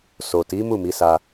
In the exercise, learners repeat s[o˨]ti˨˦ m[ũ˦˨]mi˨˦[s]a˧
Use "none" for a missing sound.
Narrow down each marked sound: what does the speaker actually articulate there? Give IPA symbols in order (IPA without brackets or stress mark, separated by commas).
o˨, u˦˨, s